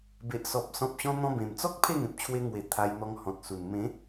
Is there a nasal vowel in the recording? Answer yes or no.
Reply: yes